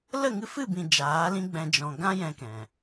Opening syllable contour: falling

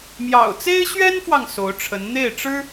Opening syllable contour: low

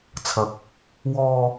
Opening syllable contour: rising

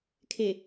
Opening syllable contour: low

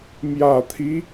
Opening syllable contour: low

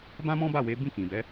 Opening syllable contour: high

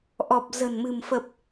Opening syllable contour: low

